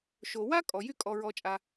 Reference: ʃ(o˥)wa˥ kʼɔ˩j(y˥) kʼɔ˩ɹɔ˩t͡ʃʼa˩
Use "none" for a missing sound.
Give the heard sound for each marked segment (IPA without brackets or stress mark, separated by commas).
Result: o˩, y˥